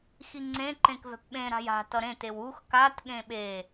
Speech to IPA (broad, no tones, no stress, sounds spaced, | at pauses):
x i ŋ͡ǀ ẽ ǃ ẽ k v ɛ̤ p ɓ ẽ ɾ a̤ j a̤ t ʌ ɾ ẽ t e w u x k a t ɠ ẽ ɓ e